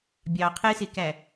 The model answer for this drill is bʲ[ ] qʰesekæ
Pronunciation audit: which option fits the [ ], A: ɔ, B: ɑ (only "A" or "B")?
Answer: B